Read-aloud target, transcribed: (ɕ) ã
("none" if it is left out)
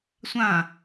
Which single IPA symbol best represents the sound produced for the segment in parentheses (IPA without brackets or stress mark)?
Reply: sʷ